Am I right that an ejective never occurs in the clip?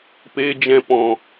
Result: yes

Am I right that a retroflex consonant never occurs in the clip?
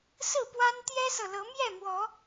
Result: yes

